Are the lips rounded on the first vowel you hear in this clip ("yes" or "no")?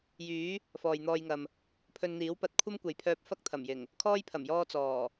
yes